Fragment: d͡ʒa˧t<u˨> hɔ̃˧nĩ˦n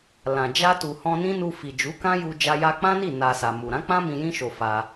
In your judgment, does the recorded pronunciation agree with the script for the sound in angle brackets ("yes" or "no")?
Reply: yes